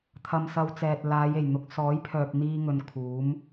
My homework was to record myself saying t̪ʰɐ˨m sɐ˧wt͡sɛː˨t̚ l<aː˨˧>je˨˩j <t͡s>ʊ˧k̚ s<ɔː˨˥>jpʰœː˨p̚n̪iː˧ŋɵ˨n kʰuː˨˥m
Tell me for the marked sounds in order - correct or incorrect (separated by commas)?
correct, incorrect, correct